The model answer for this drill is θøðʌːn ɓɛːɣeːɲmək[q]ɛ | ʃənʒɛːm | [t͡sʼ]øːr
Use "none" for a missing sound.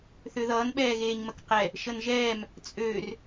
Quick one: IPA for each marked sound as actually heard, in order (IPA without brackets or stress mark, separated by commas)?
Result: q, t͡sʼ